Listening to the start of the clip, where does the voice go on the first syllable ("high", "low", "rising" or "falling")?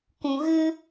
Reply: low